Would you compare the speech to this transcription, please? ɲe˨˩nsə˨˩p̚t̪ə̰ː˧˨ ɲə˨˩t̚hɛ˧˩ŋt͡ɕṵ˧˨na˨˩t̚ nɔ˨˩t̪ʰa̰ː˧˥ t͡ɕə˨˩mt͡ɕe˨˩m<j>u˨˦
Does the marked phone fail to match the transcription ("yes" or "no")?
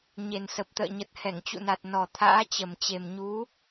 yes